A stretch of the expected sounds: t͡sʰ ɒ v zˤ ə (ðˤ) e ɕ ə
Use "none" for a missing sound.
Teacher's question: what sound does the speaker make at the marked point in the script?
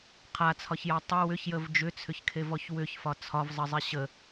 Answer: zˤ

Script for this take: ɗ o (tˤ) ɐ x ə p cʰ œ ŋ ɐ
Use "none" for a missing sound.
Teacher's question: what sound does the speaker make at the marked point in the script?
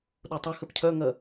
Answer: tˤ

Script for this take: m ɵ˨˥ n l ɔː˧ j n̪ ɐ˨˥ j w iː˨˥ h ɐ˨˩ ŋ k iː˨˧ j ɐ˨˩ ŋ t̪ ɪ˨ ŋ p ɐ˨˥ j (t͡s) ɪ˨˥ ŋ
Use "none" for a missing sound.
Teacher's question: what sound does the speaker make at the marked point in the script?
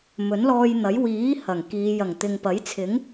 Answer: t͡sʰ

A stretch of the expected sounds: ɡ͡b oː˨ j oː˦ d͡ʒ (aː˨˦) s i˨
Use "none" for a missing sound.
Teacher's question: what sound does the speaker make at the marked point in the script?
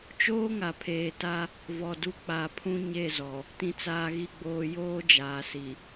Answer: aː˨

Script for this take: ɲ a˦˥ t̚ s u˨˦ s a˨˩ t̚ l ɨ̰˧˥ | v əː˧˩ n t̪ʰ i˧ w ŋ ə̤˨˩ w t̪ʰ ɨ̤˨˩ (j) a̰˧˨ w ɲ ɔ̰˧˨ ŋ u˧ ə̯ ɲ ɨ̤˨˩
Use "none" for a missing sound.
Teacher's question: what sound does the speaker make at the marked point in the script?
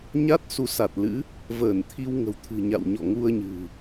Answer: ɲ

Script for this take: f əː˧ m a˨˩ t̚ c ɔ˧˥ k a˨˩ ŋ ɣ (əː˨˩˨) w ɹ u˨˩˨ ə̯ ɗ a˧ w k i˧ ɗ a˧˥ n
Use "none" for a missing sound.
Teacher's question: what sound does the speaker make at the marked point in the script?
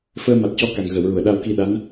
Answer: ə˨˩˨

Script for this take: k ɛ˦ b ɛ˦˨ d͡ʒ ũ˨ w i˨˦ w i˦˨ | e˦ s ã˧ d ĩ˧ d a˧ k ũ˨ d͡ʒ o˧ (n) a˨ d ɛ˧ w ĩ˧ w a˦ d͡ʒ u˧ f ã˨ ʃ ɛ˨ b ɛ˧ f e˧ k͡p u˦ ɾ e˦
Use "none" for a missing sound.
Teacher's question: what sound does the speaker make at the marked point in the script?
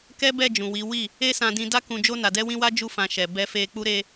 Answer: n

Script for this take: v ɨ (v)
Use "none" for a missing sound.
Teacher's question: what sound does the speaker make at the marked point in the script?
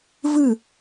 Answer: none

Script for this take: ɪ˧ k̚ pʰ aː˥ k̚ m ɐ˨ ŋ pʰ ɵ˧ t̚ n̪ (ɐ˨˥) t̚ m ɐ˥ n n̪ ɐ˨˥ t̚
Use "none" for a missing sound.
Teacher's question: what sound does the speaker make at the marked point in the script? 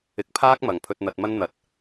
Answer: ɐ˧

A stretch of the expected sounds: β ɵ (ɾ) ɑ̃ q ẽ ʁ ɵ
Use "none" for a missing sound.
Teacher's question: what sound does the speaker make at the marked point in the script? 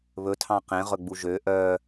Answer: tʰ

